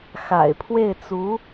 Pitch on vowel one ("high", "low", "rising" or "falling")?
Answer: low